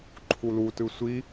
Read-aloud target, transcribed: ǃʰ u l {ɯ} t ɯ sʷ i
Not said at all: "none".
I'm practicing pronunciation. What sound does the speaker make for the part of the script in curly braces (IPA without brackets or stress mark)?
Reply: u